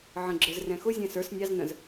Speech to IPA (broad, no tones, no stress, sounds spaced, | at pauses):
ʕ ə̃ ɡ͡ǁ ə˞ z r ɛ̃ x ʊ zʲ æ̃ s ə˞ s nʲ ɑ z n ə̃ z